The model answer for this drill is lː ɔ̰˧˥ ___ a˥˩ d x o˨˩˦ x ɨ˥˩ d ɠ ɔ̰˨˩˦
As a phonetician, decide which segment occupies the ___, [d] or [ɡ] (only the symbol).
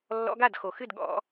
ɡ